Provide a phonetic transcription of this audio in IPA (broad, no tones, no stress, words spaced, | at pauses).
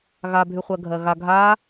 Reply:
ɣabʱy χʷɜɡʱɜɣa ɡʱa